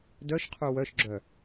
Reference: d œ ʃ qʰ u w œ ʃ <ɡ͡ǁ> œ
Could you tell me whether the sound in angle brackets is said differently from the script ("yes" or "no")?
no